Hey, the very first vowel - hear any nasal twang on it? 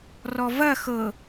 no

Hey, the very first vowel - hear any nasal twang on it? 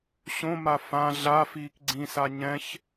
yes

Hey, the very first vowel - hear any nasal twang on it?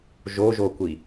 no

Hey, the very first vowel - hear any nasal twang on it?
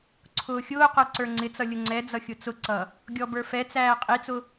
no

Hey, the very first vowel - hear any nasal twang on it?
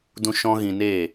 yes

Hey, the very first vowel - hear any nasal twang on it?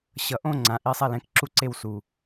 no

